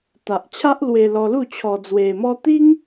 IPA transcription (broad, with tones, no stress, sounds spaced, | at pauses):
t̪ a˨ ʔ t͡ɕʰ a˦ ʔ l w e˧ l ɔ˧ l u˥˧ t͡ɕʰ ɔ˧ d͡z w e˧ m ɔ˦ t̪ i˦ ŋ